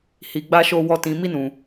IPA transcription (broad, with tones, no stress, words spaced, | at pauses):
hi˧ɡ͡ba˦ʃo˦ wɔ˦ tĩ˧mi˦nũ˧